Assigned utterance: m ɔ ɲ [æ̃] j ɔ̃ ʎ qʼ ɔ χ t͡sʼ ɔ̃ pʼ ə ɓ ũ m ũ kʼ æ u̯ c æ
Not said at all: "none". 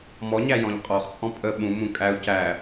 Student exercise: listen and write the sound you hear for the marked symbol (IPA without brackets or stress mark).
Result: æ